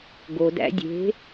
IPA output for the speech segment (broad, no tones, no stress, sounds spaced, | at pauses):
ɡ o d æ̰ dʲ e̤